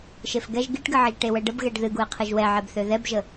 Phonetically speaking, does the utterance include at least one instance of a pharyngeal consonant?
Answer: yes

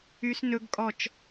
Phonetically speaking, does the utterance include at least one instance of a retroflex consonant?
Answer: no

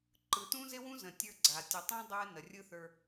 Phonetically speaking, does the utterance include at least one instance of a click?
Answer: yes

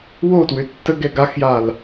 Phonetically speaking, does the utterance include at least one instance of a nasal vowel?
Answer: no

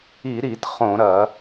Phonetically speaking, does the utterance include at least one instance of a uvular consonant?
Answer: yes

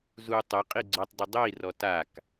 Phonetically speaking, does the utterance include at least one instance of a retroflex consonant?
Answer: no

